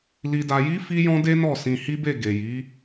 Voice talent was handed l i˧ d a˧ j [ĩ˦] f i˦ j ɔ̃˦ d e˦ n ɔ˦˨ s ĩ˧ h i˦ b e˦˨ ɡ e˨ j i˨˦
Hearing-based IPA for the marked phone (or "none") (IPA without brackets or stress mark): i˦